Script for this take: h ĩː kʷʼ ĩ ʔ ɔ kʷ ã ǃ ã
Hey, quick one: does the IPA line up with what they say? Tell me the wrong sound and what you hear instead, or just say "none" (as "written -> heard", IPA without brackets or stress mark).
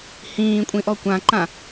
none